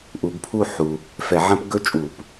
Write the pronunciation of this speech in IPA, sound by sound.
ʔ u˨˩˦ ɡ pʰ u˥˨ ħ u˨ | f ɛ˨˩˦ ʕ ɐ̃˦˥ p ɡ ɵ˦˥ t͡ʃʼ u˨˩˦ p

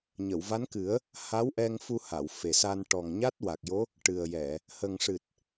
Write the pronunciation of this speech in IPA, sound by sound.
ɲ ə˨˩˨ w v a˧˥ n k ɨ˨˩˦ ə̯ | h a˧˥ w ʔ ɛ˧ ŋ f u˧ h a˨˩˨ w f e˨˩ s a˧ n ʈ ɔ˨˩ ŋ ɲ a˦˥ t̚ w a˨˩ k̚ j o˧˥ | ʈ ɨ˨˩ ə̯ j ɛ˨˩˨ | h ə˨˩ ŋ ʂ ɨ˨˩ t̚

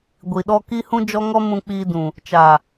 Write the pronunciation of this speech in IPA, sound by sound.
ɡʷ i˨ ɗ ɔ˧ k i˦ h ũ˦ d͡ʒ ɔ˦ ŋ ɔ˦ m ũ˧ k͡p iː˧ d ũ˨ | t͡ʃ a˨

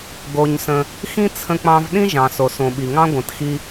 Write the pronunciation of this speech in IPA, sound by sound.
ɡ o˧ ɲ s ə̃˧ | x ĩ˥ t͡sʰ ə̃˧ k͡p ɑ̃˧ v ɗ ĩ˥ ʒ ɑ̃˩ s o˩ s õ˩ ɓ i˩ ŋ ɑ̃˥ ɡʷ ə̃˩ t x i˧

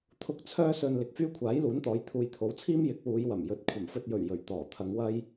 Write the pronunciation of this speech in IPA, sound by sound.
t̪ʰ ʊ˧ k̚ t͡sʰ œː˧ s ɵ˨ n l ɪ˨ k̚ f yː˥ kʷʰ aː˨˥ j l uː˨˥ n t̪ ɔː˨˧ j t̪ʰ uː˨ j t̪ʰ o˨˥ w t͡sʰ iː˥ m j ɪ˨˥ k̚ w uː˨˧ j w ɐ˨˩ m j ɵ˨˥ t̚ kʷʰ ɐ˨˩ m f ɵ˧ t̚ j ɵ˨˩ ɥ j ɵ˨˩ ɥ t̪ ɔː˨˩ t̪ʰ ɐ˨˧ ŋ w ɐ˥ j

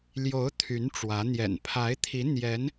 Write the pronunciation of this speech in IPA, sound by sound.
l j o˧˥ ʊ̯ t̪ʰ y˧˥ n ʈ͡ʂ w ä˧˥ n̪ j ɛ̰˨˩ n pʰ a˧˥ ɪ̯ t̪ʰ i˧˥ n̪ j ɛ˧˥ n

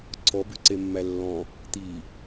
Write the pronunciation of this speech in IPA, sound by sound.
ǀʰ ɔ b y ǀ e mː æ lː ɔ̃ | t̪ i

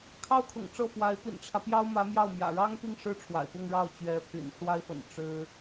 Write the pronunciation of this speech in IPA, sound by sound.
kʰ ɑ˥ ʊ̯ kʰ ʊ̰˨˩ ŋ ʈ͡ʂ ɤ˥˩ f w a˧˥ ɪ̯ p ḭ˨˩ n ʈ͡ʂʰ ä˦ p j ɑ˥ ʊ̯ m ä˧˥ m j ɑ˥˩ ʊ̯ m j ä̰˨˩ ɻ ɑ˥ ŋ p i˥˧ ŋ ʂ ɻ̩˥˩ ʈ͡ʂʰ w a̰˨˩ ɪ̯ p ʊ˥˧ ŋ ɻ ɑ˥˩ ʊ̯ t͡ɕ ɥ ɛ˧˥ pʰ y̰˨˩ n ʂ w a˥ ɪ̯ f ə̰˨˩ n ʈ͡ʂ ɻ̩˥

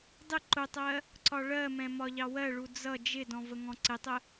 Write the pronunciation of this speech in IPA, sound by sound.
dˤ ɪ ǃ ʊ tˤ ɜ | ǀ ɒ ɭ ɜ m ɛ̃ m ɒ ʎ ɑ w ɜ ɭ u d͡z ʌ d͡ʒ ɪ d ɔ̃ v ə ŋ ɔ̃ ǀ ɪ tˤ ə

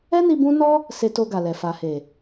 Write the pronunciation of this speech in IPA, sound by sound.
ɛ˦ n i˧ b ũ˦ n ɔ˦ | s e˧ t o˧ ɡ a˨ l ɛ˨ f a˨ h e˨

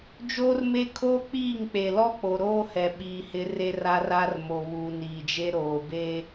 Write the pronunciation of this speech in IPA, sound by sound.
d͡ʒ oː˦ r m e˦ kʰ oː˦ k͡p iː˦˨ ŋ k͡p e˨ l ɔ˦ k͡p o˨ ɾ oː˦ h ɛ˨ ɓ iː˨ h ɪ˨˦ r e˦ r a˦ r a˦ r m o˨ β uː˨ n iː˨ d͡ʒ e˦ ɾ oː˨ b eː˦

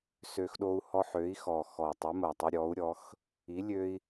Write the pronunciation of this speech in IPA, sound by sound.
s ø˦ x ɗ o˦ u̯ h ɔ˦ ħ ø˨˥ i̯ x ɔ˨˩ x ɔ˨˩ tˤ i˨˥ m ɐ˨˩ tˤ ø˦ ɾʲ ɔ˨˥ u̯ ɾʲ ɔ˨˥ x | i˨˥ lʲ ø˦ i̯

